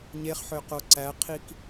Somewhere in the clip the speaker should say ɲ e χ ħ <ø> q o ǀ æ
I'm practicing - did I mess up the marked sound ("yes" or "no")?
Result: no